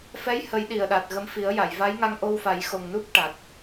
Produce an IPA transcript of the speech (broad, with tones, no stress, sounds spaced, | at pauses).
f ɛ˧˥ j h ə˨˩˦ j ɗ i˨˩ ə̯ ɗ a˨˩ t̚ ɣ ə˧˥ m f i˨˩˦ ə̯ j a˨˩˨ j v a˧˥ j ŋ a˧ ŋ ʔ o˧ w f a˨˩˦ j x o˨˩ ŋ n u˦˥ p̚ ʈ a˨˩ t̚